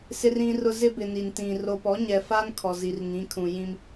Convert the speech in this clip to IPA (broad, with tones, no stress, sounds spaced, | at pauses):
s ɪ˦ r ĩ˦ r ʊ˦ z ɪ˦ b ɪ˨ n i˨ n t ĩ˨ r o˨ p ɔ˨˦ ɲ ɛ˨ f a˦ n kʰ ɔ˨ z i˨ r ŋ ĩ˨˦ kʰ ũ˨ j ĩ˦ m